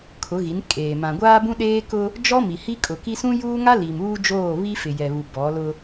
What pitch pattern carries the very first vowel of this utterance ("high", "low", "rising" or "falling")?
rising